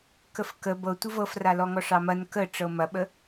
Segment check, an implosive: present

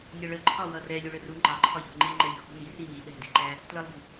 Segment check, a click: present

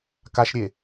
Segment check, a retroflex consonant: absent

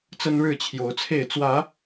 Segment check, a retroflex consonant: present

